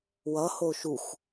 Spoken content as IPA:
w ʌ h o ʃ u x

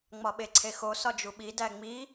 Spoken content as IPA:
ŋ͡m ɒ ɓ e ǀʰ e x o s ɒ d͡ʒ u ɓ i d æ ŋ͡m i

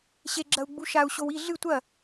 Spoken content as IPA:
ɕ e ɡ͡ǁ ɐ u̯ ɡ͡b u ʃ a u̯ ɕ o w i ɮ ɨ tʷ ɐ

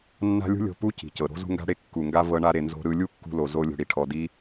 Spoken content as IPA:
nː a̤˦ lʲ ṳ˦ lʲ o̤˧ p u˦ c i̤˨ c ɤ˨ ɾ o̤˦ z ṳ˦ ŋ ɡ a̤˦ ɽ e˦ kː u˨ ŋ ɡ a˦ v ɤ˧ ɳ a˧ ɾ e˨ n z o̤˦ ɾ ɯ˦ lʲ u˦ kː ṳ˧ l o˨ z o˦ lʲ o̤˧ ɽ i˧ ʈʰ ɔ˧ d i˦

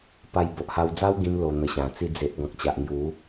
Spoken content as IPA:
p a˧ j b o˨ ʔ h a˧ w d͡z a˦ w ɡ ĩ˦ m l o˧ n̪ ə˧ ɕ ã˨˩ t͡s i˧ d͡z e˨ ʔ ɡ ɔ̃˨ k̚ t͡ɕ a˨ ʔ ŋ j u˨˦

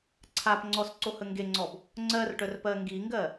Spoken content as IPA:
ǀʰ a p ŋ͡ǀ ɔ s ǀ o h ə ŋ ɡ e ŋ͡ǀ ɔ b | ŋ͡ǀ ɜ r ʈ œ r p ɜ ŋ ɡ i ŋ ɡ ɜ

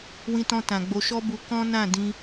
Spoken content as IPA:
w ĩ˧ t ɔ̃˧ t ã˨ ɡ͡b o˧ ʃ ɔ˦ b u˦ k ɔ̃˦ n ã˦˨ d ĩ˧

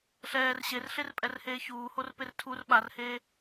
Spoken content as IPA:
ɬ ɛː r ɕ e r ɬ e r pʼ ɛ r h eː ç uː h o r p e r tʰ u r ɓ a r h eː

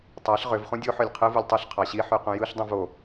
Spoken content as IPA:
tˤ æ ɬ ʁ ø v χ ũ dʲ o ħ ø lʲ qʰ ɯ v u lʲ tˤ ɯ ɬ qʰ ɑ ɕ i ħ y q ũ j ɯ ɬ dˤ ũ v o

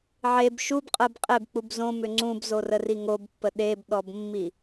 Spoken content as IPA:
ʕ e b ʃ u b qʼ ə b qʼ e b k͡p u b z õ m ʏ ŋ͡ǀ ũ b z o r ə r i ŋ o b pː ə ɗ e b ɗ ɔ b mː i

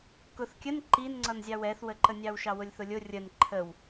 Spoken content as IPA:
k ʊ θ kʲ ə n ǃ i n ŋ͡ǀ ʌ n zʲ ɑ w ɛ θ w ə ǃ ə nʲ ɑ w ʃ ɑ w ʊ lʲ θ ʊ lʲ ʊ rʲ ə n ǃʰ ə w

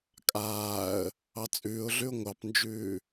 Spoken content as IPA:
kʼ aː ə̯ | ɑ t͡sʼ ʉː ʊ̯ ɮ ʉ ʊ̯ ŋʷ ɑ p n d͡ʒ ʉː

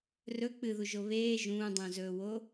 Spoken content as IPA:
r ɵ k͡p ɨ ð u ʒ o β eː ʒ ũː dˤ ũ z ɵː w o

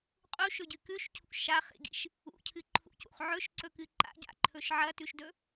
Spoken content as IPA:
qʼ u ʃ ɵ ɟ ɨ k ʉ ʃ cʰ ṵ ʃ a χ ḭ ɡ ḭ ʃ | ṵ cʰ ɨ ǃʰ ṵ c ṵ χ ʕ ɵ ʃ ǀ ɵ k ɨ ǃ a̰ ɟ a̰ ǃʰ ɵ ʃ ʕ ɐ t ʉ ʃ d ɵ

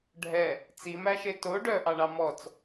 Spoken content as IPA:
ɖʱ ɛ | t͡s i m æ ʃ e t o ɖ œ ʔ ɑ ɳ ɑ m ɔ t͡s

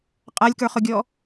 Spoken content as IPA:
qʼ a lʲ k ə˞ χ ʊ ɡʲ ɔ

